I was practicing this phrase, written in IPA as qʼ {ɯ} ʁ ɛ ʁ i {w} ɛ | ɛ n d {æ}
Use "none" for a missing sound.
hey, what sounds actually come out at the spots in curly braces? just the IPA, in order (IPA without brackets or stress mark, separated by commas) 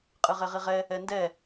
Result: ɯ, ʁ, ɛ